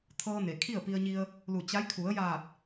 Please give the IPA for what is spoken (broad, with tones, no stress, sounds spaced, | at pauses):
t̪ʰ ɤː˧ n e˩ kʰ i˥˨ ə̯ p i˧ ə̯ ɲ i˧ ə̯ | l u˧˩ t͡ɕ a˧˥ j kʰ u˩˧ ə̯ j aː˧˩ t̚